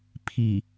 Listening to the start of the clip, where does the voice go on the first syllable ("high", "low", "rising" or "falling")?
low